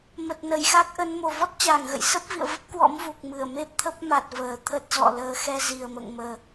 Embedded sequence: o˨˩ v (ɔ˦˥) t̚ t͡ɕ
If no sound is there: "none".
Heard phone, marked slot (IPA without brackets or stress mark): ɔ˦˥